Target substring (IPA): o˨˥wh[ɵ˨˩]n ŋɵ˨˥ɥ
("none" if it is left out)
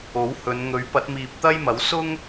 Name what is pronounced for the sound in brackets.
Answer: ɵ˨˧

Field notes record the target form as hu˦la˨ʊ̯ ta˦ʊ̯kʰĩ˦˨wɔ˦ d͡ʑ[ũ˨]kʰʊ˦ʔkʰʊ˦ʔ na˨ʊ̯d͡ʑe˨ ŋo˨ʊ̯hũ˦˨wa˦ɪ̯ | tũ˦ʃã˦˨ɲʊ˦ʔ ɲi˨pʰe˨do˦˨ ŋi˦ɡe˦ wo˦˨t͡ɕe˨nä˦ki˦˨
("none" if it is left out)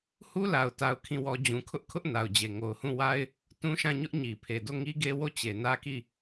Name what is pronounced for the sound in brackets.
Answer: ũ˨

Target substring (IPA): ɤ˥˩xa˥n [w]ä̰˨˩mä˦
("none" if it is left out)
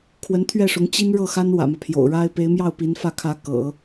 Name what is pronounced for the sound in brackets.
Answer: w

